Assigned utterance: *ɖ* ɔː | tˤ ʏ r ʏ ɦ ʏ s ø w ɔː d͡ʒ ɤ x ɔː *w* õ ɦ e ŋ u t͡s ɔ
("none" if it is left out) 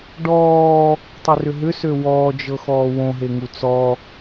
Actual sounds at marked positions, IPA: ɖ, w

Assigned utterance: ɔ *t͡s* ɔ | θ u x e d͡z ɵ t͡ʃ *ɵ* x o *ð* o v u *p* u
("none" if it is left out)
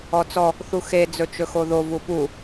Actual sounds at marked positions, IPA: t͡s, ɵ, ð, p

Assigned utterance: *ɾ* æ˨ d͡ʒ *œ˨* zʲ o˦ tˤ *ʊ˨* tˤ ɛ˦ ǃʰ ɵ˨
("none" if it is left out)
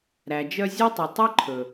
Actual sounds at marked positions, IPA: ɾ, œ˧, ɵ˨

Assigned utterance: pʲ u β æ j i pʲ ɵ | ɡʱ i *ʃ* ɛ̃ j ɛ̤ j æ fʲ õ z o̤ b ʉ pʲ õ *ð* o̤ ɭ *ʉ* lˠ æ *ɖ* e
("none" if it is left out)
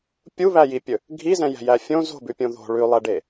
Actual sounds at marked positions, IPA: z, ð, ʉ, ɖ

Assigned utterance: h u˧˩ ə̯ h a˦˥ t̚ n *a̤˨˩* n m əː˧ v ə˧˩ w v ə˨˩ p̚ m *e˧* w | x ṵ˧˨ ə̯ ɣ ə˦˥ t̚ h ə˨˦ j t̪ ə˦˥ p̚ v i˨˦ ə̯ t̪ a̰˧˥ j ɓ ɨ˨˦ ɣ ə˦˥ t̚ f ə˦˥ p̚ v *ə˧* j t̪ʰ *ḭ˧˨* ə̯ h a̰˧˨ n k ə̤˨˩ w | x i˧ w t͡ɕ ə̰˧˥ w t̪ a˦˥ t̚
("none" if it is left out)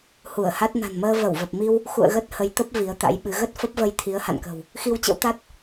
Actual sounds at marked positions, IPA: a̤˨˩, i˧, ə˧, i˨˦

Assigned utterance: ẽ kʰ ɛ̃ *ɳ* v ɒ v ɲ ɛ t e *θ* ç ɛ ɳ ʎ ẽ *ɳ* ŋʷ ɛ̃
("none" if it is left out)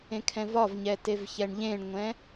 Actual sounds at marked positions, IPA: none, v, ɳ

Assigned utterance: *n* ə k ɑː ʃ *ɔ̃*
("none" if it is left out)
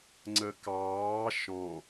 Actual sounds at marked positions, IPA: ŋ͡ǀ, ɔ̃

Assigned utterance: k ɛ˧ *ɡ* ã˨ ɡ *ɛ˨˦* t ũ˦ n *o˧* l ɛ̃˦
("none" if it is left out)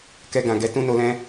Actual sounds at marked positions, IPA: ɡ, ɛ˨˦, o˧

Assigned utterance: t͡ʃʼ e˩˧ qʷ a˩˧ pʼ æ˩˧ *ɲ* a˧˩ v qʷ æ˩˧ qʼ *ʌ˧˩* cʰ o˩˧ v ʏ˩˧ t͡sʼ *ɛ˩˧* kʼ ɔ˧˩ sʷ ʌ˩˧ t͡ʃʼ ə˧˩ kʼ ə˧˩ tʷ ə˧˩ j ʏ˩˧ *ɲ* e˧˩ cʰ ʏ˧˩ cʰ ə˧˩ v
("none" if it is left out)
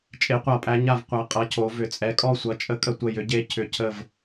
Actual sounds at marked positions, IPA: ɲ, ʌ˩˧, ɛ˩˧, ɟ

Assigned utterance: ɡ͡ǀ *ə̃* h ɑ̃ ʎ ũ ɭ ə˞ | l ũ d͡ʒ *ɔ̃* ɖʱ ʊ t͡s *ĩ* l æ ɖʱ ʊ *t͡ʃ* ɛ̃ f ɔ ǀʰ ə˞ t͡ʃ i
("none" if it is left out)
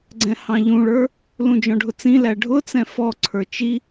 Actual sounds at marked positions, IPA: ɛ̃, ɔ̃, ĩ, t͡s

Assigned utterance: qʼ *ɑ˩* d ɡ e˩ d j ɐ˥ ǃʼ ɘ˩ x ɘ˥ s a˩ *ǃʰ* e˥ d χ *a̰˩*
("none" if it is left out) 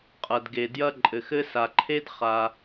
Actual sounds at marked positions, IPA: ɐ˩, ǃʰ, a˩

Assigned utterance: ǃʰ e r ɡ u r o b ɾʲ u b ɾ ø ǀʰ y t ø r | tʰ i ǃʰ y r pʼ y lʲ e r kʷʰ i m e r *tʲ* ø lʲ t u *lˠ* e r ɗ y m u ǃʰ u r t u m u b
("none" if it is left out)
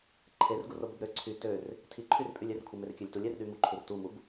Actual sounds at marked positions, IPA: kʲ, lʲ

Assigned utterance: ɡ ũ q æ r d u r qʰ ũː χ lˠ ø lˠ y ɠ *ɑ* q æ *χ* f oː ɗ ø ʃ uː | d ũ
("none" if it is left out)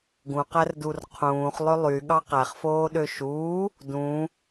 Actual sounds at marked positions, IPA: ɑ, χ

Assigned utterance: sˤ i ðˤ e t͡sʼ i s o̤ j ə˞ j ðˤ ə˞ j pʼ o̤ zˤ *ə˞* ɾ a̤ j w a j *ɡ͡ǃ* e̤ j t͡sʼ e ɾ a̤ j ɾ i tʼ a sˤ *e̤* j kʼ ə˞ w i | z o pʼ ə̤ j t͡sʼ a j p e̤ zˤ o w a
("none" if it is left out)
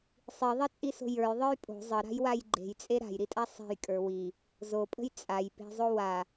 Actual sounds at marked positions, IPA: ə, ɡ͡ǃ, e̤

